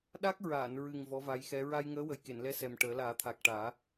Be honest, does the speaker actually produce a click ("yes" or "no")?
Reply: no